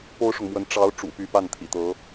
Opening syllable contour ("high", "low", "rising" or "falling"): high